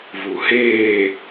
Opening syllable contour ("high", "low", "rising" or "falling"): low